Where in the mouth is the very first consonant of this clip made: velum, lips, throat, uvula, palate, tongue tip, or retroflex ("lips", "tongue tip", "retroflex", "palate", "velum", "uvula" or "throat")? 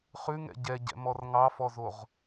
uvula